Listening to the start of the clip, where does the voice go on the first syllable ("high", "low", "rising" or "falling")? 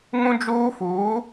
high